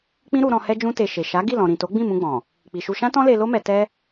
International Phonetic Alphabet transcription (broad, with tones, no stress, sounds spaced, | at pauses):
k͡p ĩ˦ ɾ u˧ ɾ ɔ̃˧ h ɛ˦ d͡ʒ ũ˦ t e˧ ʃ e˨ ʃ a˨˦ ɡ i˦˨ l ɔ̃˨ ɾ ĩ˨ t o˨˦ ɡ͡b ĩ˦˨ m ũ˧ ɡ͡b ɔ̃˨ | k͡p i˨ ʃ u˧ ʃ ã˦ t ɔ̃˦ l e˧ l o˦ m ɛ˧ t ɛ˦